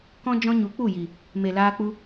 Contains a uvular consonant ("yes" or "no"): no